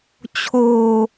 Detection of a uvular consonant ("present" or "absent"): absent